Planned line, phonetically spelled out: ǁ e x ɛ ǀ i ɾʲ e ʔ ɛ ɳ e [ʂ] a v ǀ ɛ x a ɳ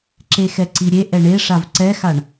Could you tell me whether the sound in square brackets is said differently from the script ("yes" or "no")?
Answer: no